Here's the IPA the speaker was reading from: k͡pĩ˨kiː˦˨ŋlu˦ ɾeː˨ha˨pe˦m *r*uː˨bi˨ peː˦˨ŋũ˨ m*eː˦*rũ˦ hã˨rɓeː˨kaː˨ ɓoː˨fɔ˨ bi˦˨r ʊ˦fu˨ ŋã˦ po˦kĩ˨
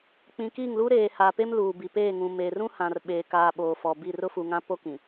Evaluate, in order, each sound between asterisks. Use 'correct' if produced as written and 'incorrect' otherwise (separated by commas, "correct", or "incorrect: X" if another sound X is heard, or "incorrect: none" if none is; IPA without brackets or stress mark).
incorrect: l, incorrect: eː˨